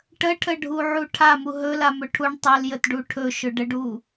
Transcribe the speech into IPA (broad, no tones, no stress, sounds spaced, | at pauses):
ʈ ə ʈʰ ə ɖʱ u ʕ u ʈʰ a m u ɦ ɵ l a m ɵ ʈʰ u ɳ tˤ ɵ l j ə t ɖ u ʈʰ ɵ ʃ ɵ ɖ ə ɖ u